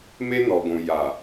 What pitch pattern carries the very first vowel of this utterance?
high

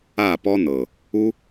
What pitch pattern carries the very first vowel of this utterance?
falling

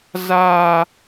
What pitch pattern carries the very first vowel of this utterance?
high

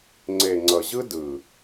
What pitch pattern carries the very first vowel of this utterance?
low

